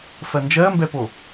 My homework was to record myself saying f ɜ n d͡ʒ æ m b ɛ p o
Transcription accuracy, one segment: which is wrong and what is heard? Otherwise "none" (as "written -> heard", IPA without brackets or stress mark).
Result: æ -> ɜ